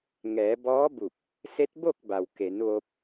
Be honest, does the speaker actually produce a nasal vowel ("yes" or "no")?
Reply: no